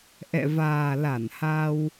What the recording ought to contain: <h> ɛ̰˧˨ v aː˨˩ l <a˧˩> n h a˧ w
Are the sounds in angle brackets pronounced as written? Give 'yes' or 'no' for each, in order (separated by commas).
no, yes